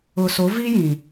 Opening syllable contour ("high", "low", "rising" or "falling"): low